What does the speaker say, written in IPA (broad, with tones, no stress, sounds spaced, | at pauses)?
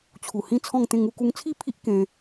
t͡ɕʰ u˨˩ h ĩ˦ t͡sʰ ɔ̃˥˧ ŋ t̪ ẽ˥˧ ŋ u˧ k u˧ ŋ t͡sʰ i˥˧ pʰ i˦ ʔ k ẽ˦